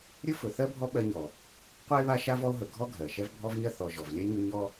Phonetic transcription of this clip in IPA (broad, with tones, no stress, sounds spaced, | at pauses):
ɾʲ ɵ˥ f ɵ˨ θ ɜ˥ bʱ ɔ˦ ɓ ɜ˦ ɲ ɔ˩ | qʷ ɜ˥ e̯ β a˦ ʃ a˥ v ɔ˦ o̯ ɦ ɵ˨ ɡʱ ɔ˥ ɡʱ ɜ˩ ʃ ɛ˦ v bʱ ɔ˦ v ɲ ɜ˦ θ ɔ˨ ʒ ɔ˩ v lʲ ɛ˥ ɲ ɵ˦ ɲ ɔ˦